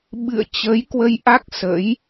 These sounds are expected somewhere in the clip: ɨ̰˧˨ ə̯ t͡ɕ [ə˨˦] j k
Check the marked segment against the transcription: correct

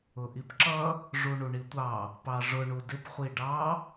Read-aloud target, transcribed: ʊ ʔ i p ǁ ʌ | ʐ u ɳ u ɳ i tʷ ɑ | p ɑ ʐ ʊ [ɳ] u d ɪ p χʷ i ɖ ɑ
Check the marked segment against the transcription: correct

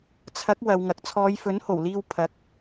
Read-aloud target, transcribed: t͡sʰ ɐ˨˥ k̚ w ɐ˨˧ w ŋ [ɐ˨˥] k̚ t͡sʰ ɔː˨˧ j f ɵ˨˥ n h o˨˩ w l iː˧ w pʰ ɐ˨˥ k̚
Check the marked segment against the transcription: correct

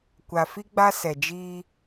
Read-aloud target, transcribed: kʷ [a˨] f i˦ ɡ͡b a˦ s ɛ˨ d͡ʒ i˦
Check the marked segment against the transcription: correct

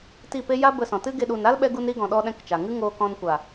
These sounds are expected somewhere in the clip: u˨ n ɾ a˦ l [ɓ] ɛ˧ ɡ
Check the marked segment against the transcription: correct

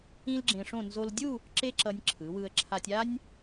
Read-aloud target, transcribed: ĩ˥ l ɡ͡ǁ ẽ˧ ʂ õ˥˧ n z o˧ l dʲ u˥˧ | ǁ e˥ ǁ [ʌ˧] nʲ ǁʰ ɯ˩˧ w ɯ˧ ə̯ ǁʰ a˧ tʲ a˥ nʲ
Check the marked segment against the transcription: correct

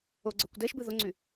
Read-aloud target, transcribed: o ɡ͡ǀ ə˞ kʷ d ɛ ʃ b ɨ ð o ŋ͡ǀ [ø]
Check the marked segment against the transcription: incorrect: y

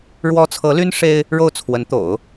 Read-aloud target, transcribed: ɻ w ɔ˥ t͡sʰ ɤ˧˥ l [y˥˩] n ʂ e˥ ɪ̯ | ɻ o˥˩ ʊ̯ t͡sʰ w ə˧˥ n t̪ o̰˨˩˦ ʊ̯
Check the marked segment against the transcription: incorrect: y˥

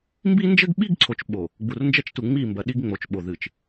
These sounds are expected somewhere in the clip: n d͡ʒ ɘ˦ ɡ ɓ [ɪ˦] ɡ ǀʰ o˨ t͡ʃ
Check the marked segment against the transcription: incorrect: i˦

